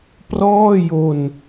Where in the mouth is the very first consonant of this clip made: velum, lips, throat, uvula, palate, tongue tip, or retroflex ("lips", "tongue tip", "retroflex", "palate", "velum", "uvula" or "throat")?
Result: lips